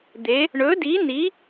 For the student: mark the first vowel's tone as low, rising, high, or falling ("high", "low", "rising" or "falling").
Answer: rising